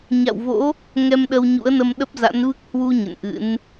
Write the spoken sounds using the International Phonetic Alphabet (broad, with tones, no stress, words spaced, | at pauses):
ɲa̰˧˨wvo̰˧˥ | ŋɛ˧mɗə˧wɲṵ˧˥ə̯nə˧m ɗə˦˥p̚za̰˧˥n vɨ˦˥k̚ hwu˧ ɲə̰˧˨nʔɨ̰˧˥n